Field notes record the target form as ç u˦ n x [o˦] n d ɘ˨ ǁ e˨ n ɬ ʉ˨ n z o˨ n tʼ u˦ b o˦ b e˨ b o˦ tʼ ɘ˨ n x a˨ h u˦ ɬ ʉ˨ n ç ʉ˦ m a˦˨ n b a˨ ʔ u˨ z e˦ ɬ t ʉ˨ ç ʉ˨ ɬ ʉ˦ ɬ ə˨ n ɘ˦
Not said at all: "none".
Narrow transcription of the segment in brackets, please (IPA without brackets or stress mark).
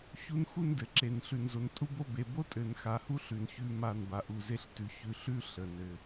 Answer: u˦